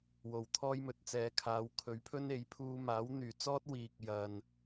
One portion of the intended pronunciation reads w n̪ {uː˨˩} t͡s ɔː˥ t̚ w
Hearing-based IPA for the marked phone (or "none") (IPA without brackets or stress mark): yː˨˩